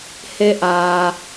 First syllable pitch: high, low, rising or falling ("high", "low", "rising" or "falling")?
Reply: rising